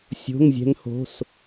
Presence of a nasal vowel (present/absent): absent